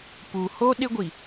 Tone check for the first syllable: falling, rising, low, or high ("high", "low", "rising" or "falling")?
low